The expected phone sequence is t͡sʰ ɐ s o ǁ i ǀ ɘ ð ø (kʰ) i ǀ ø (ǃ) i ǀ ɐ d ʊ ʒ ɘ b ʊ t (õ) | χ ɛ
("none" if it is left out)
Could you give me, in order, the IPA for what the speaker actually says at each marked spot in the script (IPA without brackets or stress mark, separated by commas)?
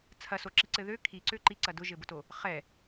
kʰ, ǃ, o